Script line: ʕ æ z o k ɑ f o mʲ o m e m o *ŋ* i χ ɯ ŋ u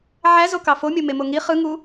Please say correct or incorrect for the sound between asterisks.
correct